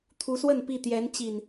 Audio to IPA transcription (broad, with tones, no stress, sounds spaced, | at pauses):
t̪ʰ u˨˦ s w ə˥˨ n p i˥˨ t̪ j ɛ˨˦ n t͡ɕ i˨˩ n